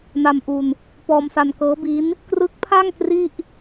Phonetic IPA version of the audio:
n a˧ m ʔ u˧ n | p ɔː˧ m s a˧ n k ɤː˦˥ b i˦˥ n | k r ɯ˦˥ k̚ pʰ a˥˩ ŋ k r i˥˩ ʔ

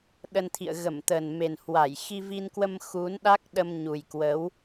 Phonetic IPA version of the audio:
ɗ ə˧ n t̪ʰ ḭ˧˨ ə̯ ɣ ə˧˩ m t̪ ə˨˩ n m e˨˩ n h w a˧˩ j x i˧ v i˧ n k w ə˧ m x u˨˦ n ɗ a˦˥ k̚ ɗ ə˧ m ɲ u˨˩ j k w ə˨˦ w

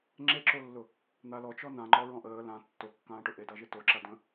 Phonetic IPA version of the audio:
ŋ͡ǁ e ǁ o lː ʊ | n̪ a l ɔ t͡ʃ ɔ n ã ŋ͡ǃ ɔ ɹ ɔ̃ ʔ əː l ã tː o kː ãː ʈ ʊ ʔ e d a ʒ e t o ǁ a d ə̃

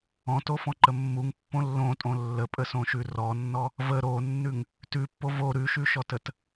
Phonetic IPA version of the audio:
ɔ̃ t o f ɔ̃ ǃ ə mː u ŋ pː õ lː õ tʼ õ lː ə pʼ ə s õ ʃ ʉ r ɔ nː ɔ | v ə ɾ o nː ʉ ŋ | t ʉ pː o v o ɾ ʉ ʃ ʉ ʃ ɔ t ə t

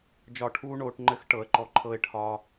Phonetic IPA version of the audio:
d͡ʒ ɒ˧˩ ʈʰ uː˦ ɳ oː˩˧ ʈ ŋ͡ǃ ɘ˦ x ʈ ɤ˩˥ ə̯ ǃ ɔ˧˩ ǃʰ ɤ˦ ɪ̯ ʈʰ ɒ˦

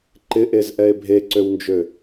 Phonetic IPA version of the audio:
ǃ ɪ ʔ e z ʔ ɛ e̯ bʱ e ǀ ø w n d͡ʒ ø

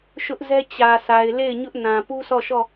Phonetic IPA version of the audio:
ʃ ʊ˦ ʔ z ɛ˦ t͡ɕ ä˨ sʰ a˨ ɪ̯ l e˦˨ ɪ̯ ɲ ʊ˦ ʔ n ã˨ p u˦ s ɔ˦˨ ʃ ɔ˦˨

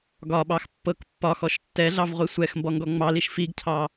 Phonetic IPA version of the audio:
ɡ ɒ ɓ ɑ x pː ɤ k pː ɒ x ɔ ʃ tː ɛ ɮ ɑ v ʁʷ i sʷ ɛ x m b ɔ ŋ ɡ ɔ ŋ͡m ɑ l i ʃ f i ɡ cʰ ɑ

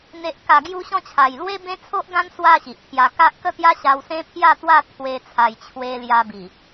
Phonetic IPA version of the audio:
n̪ e˨ ʔ k a˨˩ ɡ j u˦ ɕ ɔ̃˦ t͡ɕʰ a˨˩ j l w e˦ b ẽ˦ t͡sʰ o˦ ʔ ɡ ã˦ n s w a˥˧ ɕ i˨ ʔ pʰ j a˧ k a˦ ʔ k ə˥˧ t̪ j a˦ ɕ a˧ w s ẽ˦ pʰ j a˥˧ t̪ w a˥˧ t̪ʰ w e˧ t͡sʰ a˨˩ j t͡ɕʰ w e˧ l j a˧ b i˨˩

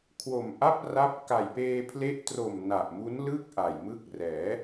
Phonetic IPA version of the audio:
kʰ w o˨˩ m ʔ a˥˩ p̚ r a˦˥ p̚ k a˨˩ j p eː˧ pʰ l e˦˥ ʔ t r o˨˩ m n a˨˩ ʔ m u˦˥ n l ɯ˥˩ k̚ ʔ a˨˩ j m ɯ˦˥ k̚ r ɛː˩˦

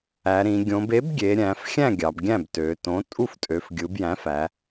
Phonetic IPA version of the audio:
æ˩˧ ɾ ĩ˩˧ ɡʲ õ˩˧ b e˩˥ b ɡʲ e˩˧ ɾʲ æ̃˩˧ f xʲ æ̃˥˩ ɡʲ ɑ˩˧ b ɡʲ æ̃˥˩ b t ø˩˧ t õ˩˥ tʼ u˥˩ f tʼ ø˩˧ f ɡʲ ɯ˩˧ b j æ̃˩˥ f æ˩˧

